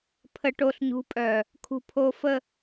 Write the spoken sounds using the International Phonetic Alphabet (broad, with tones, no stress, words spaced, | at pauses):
pʰə˨ʈo˨ɬɲṳ˨˦pʼœ˨ | kʰṳ˨pʰo˨fə˨